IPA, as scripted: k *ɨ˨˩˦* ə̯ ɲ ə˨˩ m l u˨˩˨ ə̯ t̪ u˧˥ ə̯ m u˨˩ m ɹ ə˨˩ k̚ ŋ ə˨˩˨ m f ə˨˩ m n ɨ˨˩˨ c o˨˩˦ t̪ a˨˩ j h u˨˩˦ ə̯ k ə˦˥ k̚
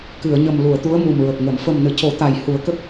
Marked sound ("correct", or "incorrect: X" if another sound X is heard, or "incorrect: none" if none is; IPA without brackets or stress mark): incorrect: ɨ˨˩˨